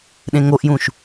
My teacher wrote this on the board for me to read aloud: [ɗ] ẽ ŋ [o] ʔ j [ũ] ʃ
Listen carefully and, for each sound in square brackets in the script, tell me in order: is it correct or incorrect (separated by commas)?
correct, correct, correct